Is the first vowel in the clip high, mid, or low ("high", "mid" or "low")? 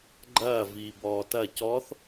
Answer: low